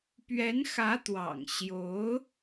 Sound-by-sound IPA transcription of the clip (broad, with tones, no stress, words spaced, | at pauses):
pɥɛ˧˥nxä˧˥t̪wɑ̰˨˩ŋ ɕjo˧˥ʊ̯